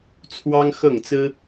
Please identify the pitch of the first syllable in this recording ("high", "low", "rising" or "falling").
high